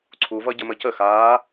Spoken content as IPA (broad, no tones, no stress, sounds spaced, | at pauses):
ǀʰ u v ʌ ɟ ə m ə c ə x aː